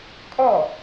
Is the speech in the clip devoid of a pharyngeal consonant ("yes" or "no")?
yes